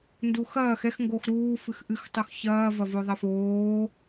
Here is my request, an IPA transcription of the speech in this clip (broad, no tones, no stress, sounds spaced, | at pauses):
n d u x ɐː x ɛ x ŋ ɡ o x ɾ uː f ɨ x ʔ ɨ x tˤ o x ç ɐː v ɐ v o ðˤ ɐ f oː